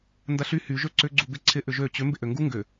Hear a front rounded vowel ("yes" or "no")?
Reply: yes